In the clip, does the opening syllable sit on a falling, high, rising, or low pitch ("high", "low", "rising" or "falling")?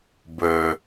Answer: low